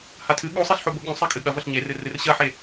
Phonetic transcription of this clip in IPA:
hatʰɨ ɠosˤeɬħo boɠũ sˤekʼɨɠɐ vɐɬɲerɨ rɨrɕɐħe

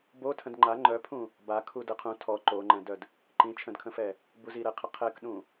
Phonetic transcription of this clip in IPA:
botʰə̃d ŋ͡ǃa ŋ͡ǃœpʰũ | ba kʰudəqʰũ tʰɔ ǃoŋ͡ǃɛ̃dœd | ǃĩt͡ʃʰə̃dkʰə̃fɛ | buziɾɛqʰə qʰɛkɗũ

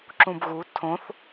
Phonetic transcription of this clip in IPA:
ǁũbɣu tʰõθ

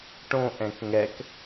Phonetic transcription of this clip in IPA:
ʈõʔɛ̃k ŋɛk

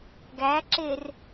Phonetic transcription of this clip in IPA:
ɡæǁer

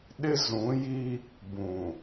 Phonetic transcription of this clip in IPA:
ɗɪ˦zũ˨˦ji˦ | bũ˨

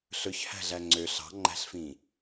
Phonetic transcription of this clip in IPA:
ɬɵçhæ̤ɮæ ŋ͡ǀø ɬɑ̤ŋ͡ǃæ̤ɬfĩ

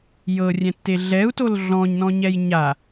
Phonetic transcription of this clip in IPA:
jɤrʲɛ̃tːe ɮɛu̯tol ɮɔ̃ɲnɔ̃ɲɛj ɲa

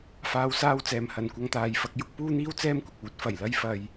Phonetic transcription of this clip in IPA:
faː˧wsaː˥wt͡sɛː˨m hɐ˨nkʷɐ˧ŋt̪aː˨jfɐ˨˥k̚ jʊ˨˥k̚puː˥n̪iː˥w t͡sɛː˥mkʷɪ˨k̚uː˨˥t̚ fɐ˨˩jlɐ˥j fɐ˧j

